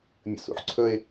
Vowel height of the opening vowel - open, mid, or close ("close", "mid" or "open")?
mid